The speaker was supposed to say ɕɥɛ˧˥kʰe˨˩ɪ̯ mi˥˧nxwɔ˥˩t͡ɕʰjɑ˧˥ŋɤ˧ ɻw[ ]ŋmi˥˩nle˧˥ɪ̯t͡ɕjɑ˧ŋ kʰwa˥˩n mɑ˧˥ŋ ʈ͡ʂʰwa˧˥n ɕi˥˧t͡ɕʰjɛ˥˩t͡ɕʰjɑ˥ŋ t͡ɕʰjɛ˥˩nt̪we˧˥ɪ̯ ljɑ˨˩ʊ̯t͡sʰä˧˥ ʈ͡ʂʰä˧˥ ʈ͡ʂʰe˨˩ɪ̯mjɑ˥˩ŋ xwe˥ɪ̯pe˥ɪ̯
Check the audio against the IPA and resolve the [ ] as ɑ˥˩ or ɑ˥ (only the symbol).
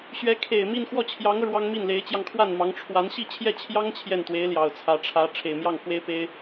ɑ˥